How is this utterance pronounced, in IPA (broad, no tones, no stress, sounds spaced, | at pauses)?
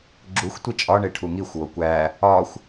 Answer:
ɡ͡ǁ u xʷ tʷ i t͡ʃʼ ɒ ɳ e ʈʰ u ŋ i xʷ w o kʷ æ | ɒ xʷ